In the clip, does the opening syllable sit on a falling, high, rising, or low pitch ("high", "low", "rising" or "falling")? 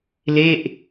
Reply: falling